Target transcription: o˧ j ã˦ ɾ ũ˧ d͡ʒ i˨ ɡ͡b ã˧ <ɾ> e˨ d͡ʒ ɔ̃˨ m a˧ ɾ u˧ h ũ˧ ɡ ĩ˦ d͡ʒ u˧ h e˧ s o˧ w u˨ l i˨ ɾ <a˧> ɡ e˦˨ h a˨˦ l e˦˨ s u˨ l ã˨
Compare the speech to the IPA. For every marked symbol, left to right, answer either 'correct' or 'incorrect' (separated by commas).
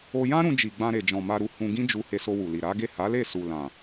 correct, incorrect